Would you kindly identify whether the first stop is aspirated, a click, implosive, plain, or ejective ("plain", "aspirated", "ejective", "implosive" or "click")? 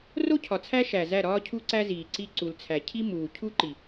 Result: aspirated